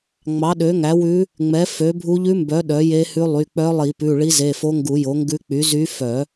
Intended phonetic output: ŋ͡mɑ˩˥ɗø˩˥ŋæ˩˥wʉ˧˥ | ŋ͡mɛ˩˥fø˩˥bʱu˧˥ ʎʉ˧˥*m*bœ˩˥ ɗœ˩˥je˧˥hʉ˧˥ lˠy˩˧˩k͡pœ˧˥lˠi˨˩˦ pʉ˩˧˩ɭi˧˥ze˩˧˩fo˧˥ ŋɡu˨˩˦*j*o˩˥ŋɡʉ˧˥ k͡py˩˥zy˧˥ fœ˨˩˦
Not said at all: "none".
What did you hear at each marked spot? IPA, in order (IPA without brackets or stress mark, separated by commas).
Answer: m, j